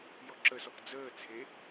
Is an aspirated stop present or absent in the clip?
present